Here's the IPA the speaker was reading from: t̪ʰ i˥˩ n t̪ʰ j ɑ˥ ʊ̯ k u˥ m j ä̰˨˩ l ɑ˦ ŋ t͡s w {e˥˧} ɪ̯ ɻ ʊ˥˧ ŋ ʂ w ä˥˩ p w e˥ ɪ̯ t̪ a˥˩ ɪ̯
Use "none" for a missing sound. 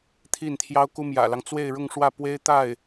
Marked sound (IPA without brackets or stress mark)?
e˥˧